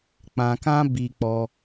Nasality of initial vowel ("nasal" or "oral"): nasal